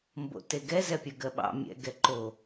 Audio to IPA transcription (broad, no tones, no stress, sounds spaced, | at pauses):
m b o̰ t e ɡ ɛ z ɛ pʲ ə˞ ɡ ɜ ɓ ɑ̰ mʲ ɛ̰ ɡ ɛ ǃ o